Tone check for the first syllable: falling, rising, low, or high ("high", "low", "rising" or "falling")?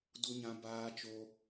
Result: high